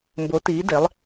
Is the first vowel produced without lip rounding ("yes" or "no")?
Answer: no